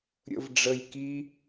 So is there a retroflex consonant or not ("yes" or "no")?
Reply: yes